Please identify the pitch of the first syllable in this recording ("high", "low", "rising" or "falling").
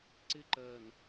high